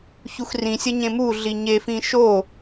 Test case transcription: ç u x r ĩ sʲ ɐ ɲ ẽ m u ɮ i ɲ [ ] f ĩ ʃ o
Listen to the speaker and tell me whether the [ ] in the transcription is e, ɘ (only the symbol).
e